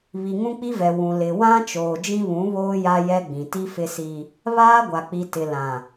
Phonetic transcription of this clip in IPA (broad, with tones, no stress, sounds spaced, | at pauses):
β i˨ ŋ ũ˦ k͡p i˦ v ɛ˨ w ũ˨ l ɪ˨ w ã˦ t͡ʃ oː˨ d͡ʒ ĩ˦ β ũ˨˦ β oː˦ j a˦ j ɛ˦ ɡ͡b ĩ˨ t i˦ f ɪ˦ s i˦ | β aː˦ ɡʷ a˨ k͡p i˨ t ɪ˨ l ã˨